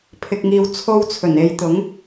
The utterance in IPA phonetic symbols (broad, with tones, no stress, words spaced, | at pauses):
pʰɪ˨k̚ ŋiː˨wt͡sʰo˧wt͡sʰɵ˨˩ne˨˧j t̪ʊ˨˥ŋ